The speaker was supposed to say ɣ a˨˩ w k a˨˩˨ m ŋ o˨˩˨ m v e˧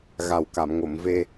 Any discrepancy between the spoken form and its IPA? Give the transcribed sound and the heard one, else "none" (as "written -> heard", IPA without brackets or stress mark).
none